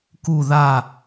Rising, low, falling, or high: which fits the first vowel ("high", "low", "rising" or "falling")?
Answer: falling